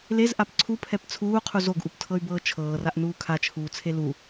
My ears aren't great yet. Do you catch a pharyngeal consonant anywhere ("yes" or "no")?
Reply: no